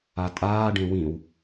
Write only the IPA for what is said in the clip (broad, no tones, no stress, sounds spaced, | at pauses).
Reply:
a tʼ aː ɖ ẽ w ĩ w